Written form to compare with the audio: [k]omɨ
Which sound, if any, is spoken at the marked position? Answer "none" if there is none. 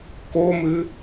k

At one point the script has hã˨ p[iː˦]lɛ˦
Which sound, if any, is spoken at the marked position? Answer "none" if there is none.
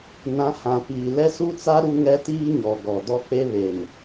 iː˨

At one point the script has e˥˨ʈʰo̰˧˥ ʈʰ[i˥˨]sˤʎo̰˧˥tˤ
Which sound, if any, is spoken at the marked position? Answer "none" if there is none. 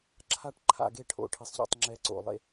i˧˥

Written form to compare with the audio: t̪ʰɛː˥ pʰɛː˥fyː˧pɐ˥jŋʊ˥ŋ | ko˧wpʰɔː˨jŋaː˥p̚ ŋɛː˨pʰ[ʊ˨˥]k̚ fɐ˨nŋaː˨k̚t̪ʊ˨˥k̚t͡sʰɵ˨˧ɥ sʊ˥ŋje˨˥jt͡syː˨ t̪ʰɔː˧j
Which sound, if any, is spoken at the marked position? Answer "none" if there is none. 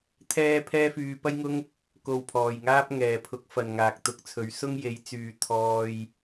ʊ˨˥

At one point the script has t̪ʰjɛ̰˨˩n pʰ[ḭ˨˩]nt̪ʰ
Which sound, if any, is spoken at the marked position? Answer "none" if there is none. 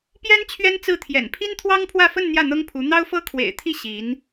i˥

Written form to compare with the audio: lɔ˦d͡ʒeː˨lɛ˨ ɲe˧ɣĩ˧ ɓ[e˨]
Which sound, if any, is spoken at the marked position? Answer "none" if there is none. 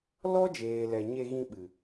ɨ˨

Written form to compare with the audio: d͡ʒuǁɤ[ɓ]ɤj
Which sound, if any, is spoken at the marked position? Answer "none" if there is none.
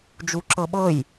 ɓ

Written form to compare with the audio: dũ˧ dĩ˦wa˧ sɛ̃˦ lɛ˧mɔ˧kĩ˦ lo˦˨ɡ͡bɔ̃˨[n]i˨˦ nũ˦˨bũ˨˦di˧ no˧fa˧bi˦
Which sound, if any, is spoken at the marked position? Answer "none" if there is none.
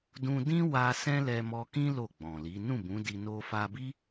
l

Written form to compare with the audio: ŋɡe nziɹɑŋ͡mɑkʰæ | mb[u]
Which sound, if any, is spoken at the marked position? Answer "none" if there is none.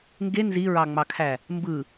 ɯ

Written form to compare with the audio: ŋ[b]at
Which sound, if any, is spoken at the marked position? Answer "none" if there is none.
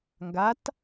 ɡ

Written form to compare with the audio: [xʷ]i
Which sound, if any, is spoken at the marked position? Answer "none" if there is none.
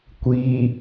kʷ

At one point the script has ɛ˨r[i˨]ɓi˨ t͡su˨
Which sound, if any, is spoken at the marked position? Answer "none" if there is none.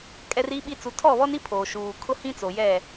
i˨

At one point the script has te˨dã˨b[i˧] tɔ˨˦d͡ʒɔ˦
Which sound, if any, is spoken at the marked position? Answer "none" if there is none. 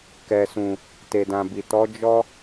i˨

